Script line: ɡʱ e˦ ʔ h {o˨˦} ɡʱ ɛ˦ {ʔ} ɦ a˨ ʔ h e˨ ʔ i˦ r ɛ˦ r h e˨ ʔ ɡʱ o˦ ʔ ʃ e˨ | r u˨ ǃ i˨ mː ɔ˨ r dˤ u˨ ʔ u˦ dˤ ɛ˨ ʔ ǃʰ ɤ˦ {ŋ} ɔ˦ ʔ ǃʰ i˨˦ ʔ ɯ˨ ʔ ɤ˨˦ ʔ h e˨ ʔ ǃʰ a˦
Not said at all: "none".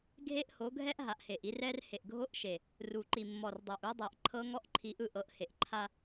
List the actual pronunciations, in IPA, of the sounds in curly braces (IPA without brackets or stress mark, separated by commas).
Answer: o˨˦, ʔ, ŋ